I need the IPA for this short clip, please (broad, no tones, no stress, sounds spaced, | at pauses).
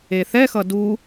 e θ ɛ x ʌ d u